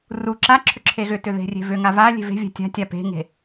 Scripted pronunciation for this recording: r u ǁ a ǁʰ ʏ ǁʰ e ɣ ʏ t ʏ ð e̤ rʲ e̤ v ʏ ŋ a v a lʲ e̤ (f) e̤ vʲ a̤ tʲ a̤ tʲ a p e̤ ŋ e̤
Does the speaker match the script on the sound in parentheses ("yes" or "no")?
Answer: no